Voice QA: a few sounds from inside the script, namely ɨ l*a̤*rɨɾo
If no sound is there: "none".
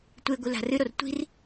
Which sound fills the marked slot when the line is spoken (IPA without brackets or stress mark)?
a̤